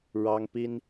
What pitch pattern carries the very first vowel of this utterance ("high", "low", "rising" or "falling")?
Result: high